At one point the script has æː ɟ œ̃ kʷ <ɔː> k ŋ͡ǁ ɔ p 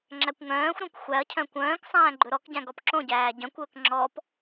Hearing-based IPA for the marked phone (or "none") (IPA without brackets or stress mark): ɵː